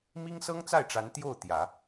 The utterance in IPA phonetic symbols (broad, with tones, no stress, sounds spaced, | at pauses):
m i˥ ŋ s ɤ˥ ŋ t͡s a˥˩ ɪ̯ ʈ͡ʂ a˧˥ n t̪ j o˥˩ ʊ̯ t̪ j ä˨˩˦